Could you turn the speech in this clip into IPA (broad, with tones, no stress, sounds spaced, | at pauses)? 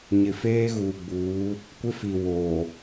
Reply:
ɲ ɪ˨ f eː˦ ɣ uː˨ ɡ͡b uː˨˦ | kʷ ɪ˦ f i˨ w oː˨